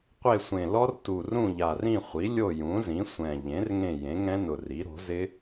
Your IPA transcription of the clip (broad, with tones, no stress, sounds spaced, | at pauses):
qʷ e˦˨ sʷ ẽ˨˩ l ɔ˦˥ r t u˨˩ r ũ˦˨ ʎ a˨˩ r ĩ˦˨ χʷ i˩˥ lʲ o˦˨ j ũ˩˥ z ĩ˩˥ sʷ ɛ̃˨˩ ʎ ẽ˩˥ r ŋ ẽ˦˨ j ẽ˩˥ ŋ ɛ̃˦˥ n ʊ˨˩ r i˩˥ ɾ o̤˩˥ z ɪ˦˥